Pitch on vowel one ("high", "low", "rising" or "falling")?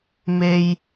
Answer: high